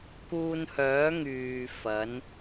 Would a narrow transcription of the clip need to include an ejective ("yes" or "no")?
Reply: no